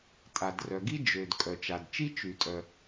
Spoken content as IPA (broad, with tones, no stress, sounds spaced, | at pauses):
tʼ a˩ d r œ˩ ɡ i˥ d͡ʒ ø˩ d kʼ œ˩ t͡ʃ a˩ d t͡ʃ i˥ t͡ʃ y˩ tʼ œ˩